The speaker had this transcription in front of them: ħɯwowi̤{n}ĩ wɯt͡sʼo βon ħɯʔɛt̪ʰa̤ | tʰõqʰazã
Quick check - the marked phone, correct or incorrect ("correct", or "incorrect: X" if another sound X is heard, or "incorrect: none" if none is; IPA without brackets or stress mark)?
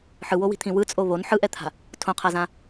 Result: incorrect: t̪ʰ